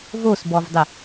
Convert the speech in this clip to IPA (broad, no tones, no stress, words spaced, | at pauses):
vosbɔvdˤə